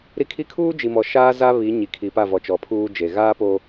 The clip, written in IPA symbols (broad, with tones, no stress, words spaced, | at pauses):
ɾi˦ kʰi˦ kʰuː˦d͡ʒi˨mɔ˨ ʃaː˦ za˦βi˨˦ ɲi˨kʰi˨pa˦˨vɔ˨ t͡ʃɔ˨pʰuː˦d͡ʒe˨ ɣaː˦poː˦